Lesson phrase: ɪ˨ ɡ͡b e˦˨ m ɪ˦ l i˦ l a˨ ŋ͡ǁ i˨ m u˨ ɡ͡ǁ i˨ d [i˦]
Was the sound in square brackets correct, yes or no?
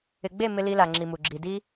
yes